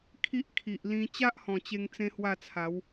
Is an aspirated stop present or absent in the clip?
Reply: present